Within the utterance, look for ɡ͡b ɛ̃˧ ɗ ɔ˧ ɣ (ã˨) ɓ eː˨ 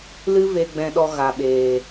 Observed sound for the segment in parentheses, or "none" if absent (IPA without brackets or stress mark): a˨